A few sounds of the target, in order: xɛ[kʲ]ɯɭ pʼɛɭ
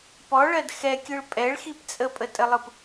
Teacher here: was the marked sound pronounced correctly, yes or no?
yes